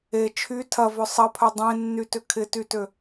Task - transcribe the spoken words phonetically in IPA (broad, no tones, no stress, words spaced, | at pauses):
e t͡ʃʰy tʰɐvœ sˤɐpʰœ dˤẽnːytʏ kʰɪtytø